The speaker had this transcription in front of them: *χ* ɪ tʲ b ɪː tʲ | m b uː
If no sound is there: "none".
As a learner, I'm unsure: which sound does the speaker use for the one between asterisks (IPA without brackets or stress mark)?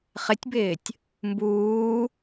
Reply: χ